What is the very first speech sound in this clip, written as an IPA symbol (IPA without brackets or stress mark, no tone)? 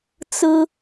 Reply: t͡s